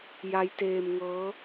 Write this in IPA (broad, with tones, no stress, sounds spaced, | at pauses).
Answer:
j a˦˥ j t eː˧ m ŋ ɤː˦˥